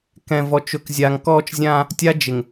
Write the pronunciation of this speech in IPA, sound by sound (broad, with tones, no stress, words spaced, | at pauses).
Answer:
kɛ̃˨vɔ˨t͡ʃʊ˨kzʲa˨ŋ kɔː˦t͡ʃzʲãː˦ | tʲa˦d͡ʒɪ˨ŋ